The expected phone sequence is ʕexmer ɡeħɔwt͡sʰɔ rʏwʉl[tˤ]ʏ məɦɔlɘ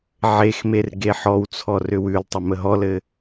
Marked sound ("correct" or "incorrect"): correct